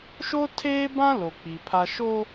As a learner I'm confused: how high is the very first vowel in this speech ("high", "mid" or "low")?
mid